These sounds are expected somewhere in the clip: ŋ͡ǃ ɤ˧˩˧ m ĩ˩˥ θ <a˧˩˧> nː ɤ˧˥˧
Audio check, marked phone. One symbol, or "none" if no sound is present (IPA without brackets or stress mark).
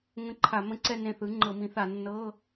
a˧˩˧